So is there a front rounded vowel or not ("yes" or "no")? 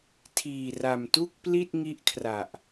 no